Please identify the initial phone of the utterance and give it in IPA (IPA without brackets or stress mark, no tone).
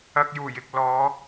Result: ɐ